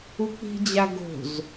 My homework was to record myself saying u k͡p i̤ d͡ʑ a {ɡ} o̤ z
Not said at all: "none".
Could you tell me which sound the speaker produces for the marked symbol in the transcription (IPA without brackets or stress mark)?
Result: ɡ